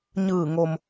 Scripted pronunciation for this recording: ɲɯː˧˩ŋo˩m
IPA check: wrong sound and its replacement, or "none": none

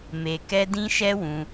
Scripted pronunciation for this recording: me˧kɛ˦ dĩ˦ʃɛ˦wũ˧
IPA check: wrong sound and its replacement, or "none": none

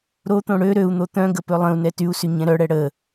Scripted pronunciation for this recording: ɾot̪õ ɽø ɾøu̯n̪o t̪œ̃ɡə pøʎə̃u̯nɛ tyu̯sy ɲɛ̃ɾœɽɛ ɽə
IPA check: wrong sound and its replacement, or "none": ʎ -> lˠ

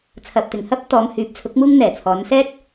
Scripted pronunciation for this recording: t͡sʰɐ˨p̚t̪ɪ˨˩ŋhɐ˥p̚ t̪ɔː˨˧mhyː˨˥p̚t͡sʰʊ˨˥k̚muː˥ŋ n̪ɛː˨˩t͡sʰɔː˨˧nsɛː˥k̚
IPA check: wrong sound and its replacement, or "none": none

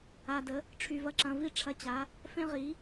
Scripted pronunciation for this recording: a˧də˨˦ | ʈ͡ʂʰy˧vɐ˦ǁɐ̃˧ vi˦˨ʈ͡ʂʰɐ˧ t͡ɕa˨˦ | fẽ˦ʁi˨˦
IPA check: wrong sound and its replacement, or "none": none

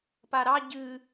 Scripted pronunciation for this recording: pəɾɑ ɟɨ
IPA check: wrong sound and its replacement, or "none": ə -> a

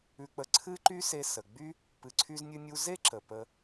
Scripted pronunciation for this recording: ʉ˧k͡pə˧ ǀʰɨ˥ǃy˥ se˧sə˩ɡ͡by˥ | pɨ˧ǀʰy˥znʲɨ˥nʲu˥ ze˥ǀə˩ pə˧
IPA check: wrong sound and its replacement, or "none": ǀ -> ǁ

